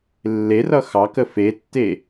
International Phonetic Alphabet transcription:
lː e r ʌ x ɑ k ə f e tː e

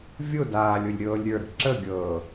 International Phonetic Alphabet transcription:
vʲ ʊ d aː lʲ ʊ lʲ ɾʲ ɤː lʲ ɾʲ ə˞ ɾ ə̤ ǁ ə ɡʲ ɤː

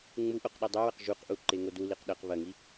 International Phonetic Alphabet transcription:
ŋ͡m u ʔ o q ɗ i dˤ ɨ w ɐ q ʒ u q ʔ u ǃ e ŋ o d u l i q ɗ ɐ q β ɐ ŋ i

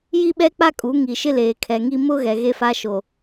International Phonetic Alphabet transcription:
j i˦ ɓ ɛ˦ k͡p a˦ kʼ u˨˦ ŋ i˨ ʃ ɪ˦ l eː˨ kʰ ɛ˨ ŋ i˦ m ʊ˦ ɣ ɛ˨ ɣ e˦ f a˦ ʃ o˨

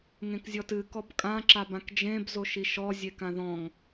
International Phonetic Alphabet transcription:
ŋ ẽ k zʲ ɔ t ɨ k ɔ b kʼ ã ǁ a b ã k d͡ʒ ẽ b z o ʃ i ʃ ɔ zʲ e k ã ð ɔ̃ ŋ

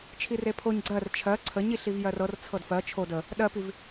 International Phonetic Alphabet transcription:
t͡ʃʰ i r e pʰ o ɲ ɡ͡ǀ ɜ r t͡ʃʰ ɜ ǀʰ ə ɲ i ɬ i v j ɜ r ɤ r t͡sʰ ɤ d f ɜ t͡ʃʰ o d ə | ɗ ɜ p i v

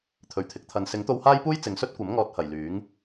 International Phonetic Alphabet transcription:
t̪ʰ ɵ˨˩ ɥ t̪ʰ ɪ˨˥ k̚ t̪ʰ ɐ˨˧ n s ɪ˨˥ ŋ t̪ o˧ w h aː˥ j p uː˥ j t͡s ɪ˨˧ ŋ s ɵ˥ t̚ kʷ ɐ˨˥ m ŋ ɔː˨ t̚ h ɐ˨˩ j l yː˨˥ ŋ

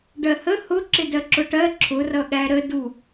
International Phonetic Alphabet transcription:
ɖ ɜ h ə h ʊ ǁ ɪ d ɜ ǁ ʊ ʈ ɜ ǁʰ ʊ r ʌ ɠ æ ɾ ə d u

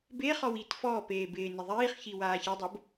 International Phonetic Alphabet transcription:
b e χ ɔ w i t f ɔː p eː b ɪː n ɪ ðˤ iː χ ç i w aː ç ɪ dˤ o b

